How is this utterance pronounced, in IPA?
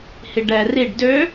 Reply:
h i ɖ ɛ r i ɖ d ø

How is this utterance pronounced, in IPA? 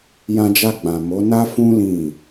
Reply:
j ã˧ d͡ʒ a˧ ɡ͡b ã˨ m o˨˦ n a˦ f ũ˦ l ĩ˦˨

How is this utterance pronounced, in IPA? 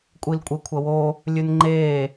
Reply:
kʷʼ i l kʷʼ e kʷʰ ɐ w o | lʲ ʉ n ŋ͡ǃ e

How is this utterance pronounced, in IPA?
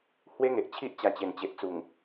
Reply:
h w e˦ ŋ e˨ ʔ t͡ɕʰ i˦ ʔ t͡ɕ a˧ t͡ɕ e˨˩ n t͡ɕ e˨ ʔ t͡s u˨˩ ŋ

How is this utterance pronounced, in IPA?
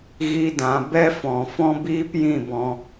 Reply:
ɣ i˦ d ã˨˦ b ɛ˦ f ɔ̃˨ f ɔ̃˦ b iː˦ p j ĩ˦˨ b ɔ̃˧

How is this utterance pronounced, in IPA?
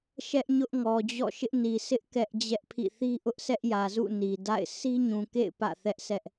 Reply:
ʃ ɛ˦ ʔ ɲ ʊ˦ ʔ ŋ ɔ˨ d͡ʑ ɔ̰˦˨ ʃ ɪ˦ ʔ n i˨ sʰ ɪ˦ ʔ k ɛ˦ ʔ d͡ʑ ɛ˦ ʔ pʰ ḭ˦˨ θ i˦ ʔ ʊ˦ ʔ sʰ ɛ˦ ʔ j ä˨ z ṵ˦˨ n i˨ d a̰˦˨ ɪ̯ s i˦ ɲ ũ˨ k ḛ˦˨ ɪ̯ p ä̰˦˨ θ ɛ˦ ʔ sʰ ɛ˦ ʔ

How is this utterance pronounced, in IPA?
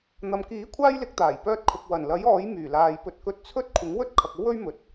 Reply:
n̪ ɐ˨ m k iː˨˥ kʷʰ aː˥ j l ɪ˨˥ k̚ t̪ aː˨˩ j p œː˧ t̚ kʰ ʊ˨ k̚ w ɐ˨˩ n l ɐ˨˥ j ɔː˨˥ j m yː˨˩ l aː˨ j p ɵ˧ t̚ k ɵ˧ t̚ t͡sʰ ɵ˥ t̚ kʷʰ ɪ˨˥ ŋ w ɵ˥ t̚ kʰ ɐ˨ k̚ o˥ w ɵ˥ ɥ m ɵ˨ t̚

